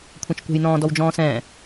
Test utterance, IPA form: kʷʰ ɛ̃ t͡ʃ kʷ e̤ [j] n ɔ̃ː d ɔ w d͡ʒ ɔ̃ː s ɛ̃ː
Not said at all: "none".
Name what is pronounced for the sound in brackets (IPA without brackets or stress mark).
j